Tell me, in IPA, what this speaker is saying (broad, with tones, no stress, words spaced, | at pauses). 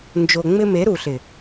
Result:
nd͡ʒo˨ŋ͡mɪ˦ me˨˦ɾu˨ɬɪ˨